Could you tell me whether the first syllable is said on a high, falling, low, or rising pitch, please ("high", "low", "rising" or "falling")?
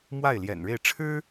falling